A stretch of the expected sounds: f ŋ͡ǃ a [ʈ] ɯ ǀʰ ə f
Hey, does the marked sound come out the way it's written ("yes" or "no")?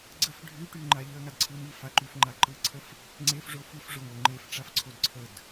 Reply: no